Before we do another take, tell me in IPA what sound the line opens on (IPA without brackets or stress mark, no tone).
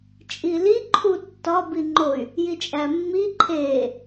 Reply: t͡ʃʼ